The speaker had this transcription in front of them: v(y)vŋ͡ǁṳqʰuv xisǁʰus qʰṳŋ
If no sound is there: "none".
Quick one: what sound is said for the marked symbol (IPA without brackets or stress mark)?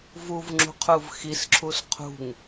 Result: u